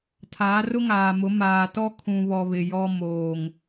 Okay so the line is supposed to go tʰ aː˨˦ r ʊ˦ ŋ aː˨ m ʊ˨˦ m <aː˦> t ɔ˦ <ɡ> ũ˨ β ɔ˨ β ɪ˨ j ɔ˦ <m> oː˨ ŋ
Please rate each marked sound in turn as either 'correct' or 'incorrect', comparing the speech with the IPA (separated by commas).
incorrect, incorrect, correct